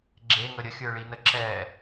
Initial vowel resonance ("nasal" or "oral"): oral